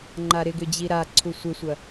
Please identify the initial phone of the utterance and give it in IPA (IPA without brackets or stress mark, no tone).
ŋ͡ǃ